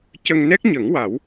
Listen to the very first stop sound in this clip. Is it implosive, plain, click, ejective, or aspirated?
plain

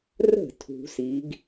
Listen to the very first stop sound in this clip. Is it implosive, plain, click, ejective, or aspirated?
aspirated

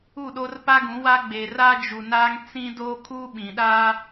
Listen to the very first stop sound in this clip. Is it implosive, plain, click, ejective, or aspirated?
implosive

